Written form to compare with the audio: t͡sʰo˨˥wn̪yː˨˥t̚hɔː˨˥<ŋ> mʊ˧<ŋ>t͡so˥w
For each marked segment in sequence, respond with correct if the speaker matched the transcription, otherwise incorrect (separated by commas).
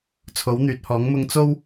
correct, correct